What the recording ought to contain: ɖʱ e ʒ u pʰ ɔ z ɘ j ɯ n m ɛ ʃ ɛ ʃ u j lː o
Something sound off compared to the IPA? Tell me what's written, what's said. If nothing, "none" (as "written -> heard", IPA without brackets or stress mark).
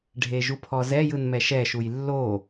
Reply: ɘ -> ɛ